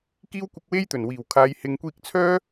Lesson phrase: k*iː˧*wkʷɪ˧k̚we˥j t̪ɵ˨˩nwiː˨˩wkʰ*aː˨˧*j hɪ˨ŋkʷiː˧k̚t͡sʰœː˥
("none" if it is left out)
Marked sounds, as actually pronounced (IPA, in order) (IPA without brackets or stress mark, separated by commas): iː˥, aː˨˧